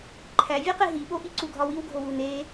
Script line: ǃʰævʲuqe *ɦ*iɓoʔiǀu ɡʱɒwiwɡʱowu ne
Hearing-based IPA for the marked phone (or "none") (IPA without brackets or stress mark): ɦ